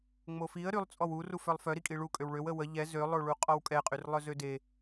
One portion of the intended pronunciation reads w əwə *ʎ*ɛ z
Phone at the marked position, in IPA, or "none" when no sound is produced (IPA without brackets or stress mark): ʎ